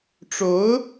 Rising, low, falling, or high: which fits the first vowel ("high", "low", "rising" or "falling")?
rising